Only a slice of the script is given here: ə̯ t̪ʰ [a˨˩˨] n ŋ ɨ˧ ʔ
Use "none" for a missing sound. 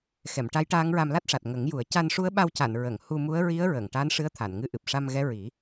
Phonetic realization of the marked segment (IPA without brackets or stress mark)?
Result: a˨˩˨